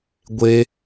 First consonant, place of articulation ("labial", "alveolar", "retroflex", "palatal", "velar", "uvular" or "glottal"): velar